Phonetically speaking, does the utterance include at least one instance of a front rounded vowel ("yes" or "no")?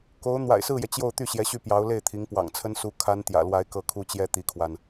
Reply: yes